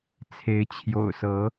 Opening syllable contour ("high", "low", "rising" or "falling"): rising